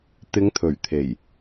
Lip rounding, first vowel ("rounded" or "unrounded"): unrounded